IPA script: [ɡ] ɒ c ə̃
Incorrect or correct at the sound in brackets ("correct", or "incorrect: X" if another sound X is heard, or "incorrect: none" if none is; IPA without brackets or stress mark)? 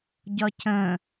incorrect: ɟ